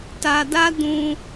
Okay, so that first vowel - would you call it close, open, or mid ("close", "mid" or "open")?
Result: open